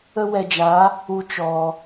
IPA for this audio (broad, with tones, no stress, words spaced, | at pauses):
ə˦wɛ˧d͡ʒa˨˦ | u˧t͡ʃɔ˨